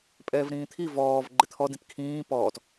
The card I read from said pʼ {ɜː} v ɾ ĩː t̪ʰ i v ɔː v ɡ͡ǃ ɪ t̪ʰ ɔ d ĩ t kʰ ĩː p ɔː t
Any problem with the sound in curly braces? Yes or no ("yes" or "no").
yes